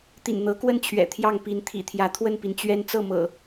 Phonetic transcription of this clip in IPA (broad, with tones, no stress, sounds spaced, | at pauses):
t̪ ḭ˨˩ n n̪ ɤ˨˦ k w ə˥˨ n t͡ɕʰ ɥ ɛ̰˨˩ t̪ʰ j ɑ˥˨ ŋ p i˨˦ n t̪ʰ ḭ˨˩ t̪ʰ j ä˨˦ t̪ʰ w ə˥˨ n p i˩ n t͡ɕ ɥ ɛ˦ n t͡s ɤ˥˨ m ɤ̰˨˩